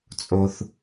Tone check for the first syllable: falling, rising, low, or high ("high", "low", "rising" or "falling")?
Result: high